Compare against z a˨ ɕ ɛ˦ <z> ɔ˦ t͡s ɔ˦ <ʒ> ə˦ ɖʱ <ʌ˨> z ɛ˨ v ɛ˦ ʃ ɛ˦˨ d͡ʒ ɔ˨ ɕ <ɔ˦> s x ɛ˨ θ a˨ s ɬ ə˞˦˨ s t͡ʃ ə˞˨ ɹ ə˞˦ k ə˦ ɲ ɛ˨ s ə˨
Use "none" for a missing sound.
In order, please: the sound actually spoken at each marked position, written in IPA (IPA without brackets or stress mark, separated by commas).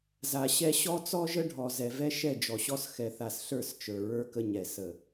ɕ, ʒ, ɔ˨, ɔ˦